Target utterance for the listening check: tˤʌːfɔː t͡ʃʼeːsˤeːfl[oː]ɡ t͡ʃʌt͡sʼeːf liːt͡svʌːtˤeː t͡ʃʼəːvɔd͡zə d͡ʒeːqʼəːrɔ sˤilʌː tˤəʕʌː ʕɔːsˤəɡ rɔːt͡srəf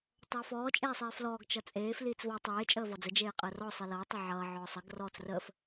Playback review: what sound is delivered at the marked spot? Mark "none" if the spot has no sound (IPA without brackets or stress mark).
ɔː